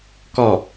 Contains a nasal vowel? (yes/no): no